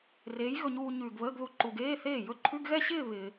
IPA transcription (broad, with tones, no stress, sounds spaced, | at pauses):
r eː˨˥ j ɣ ɵ˧ ɲ uː˧ ɲ ʉː˨˩ ɡ β əː˧˥˧ ɡ ð u˧ ǃ u˨˩ ɡ eː˧˥˧ θ eː˥˩ j ɵ˥˧ ǃʰ ʉ˧˥˧ ɡ ɣ ɛ˥˧ ɕ ɪː˥˧ β ɪː˧